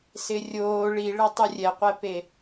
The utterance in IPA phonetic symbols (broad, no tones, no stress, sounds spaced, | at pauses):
s ɪ rʲ oː ɭ i ɭ ɛ tˤ u rʲ ɛ qʷ ɛ p e